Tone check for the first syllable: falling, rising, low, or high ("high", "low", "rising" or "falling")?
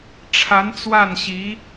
rising